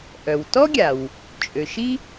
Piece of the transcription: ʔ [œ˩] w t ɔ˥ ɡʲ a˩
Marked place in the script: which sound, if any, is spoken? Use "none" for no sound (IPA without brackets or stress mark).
œ˩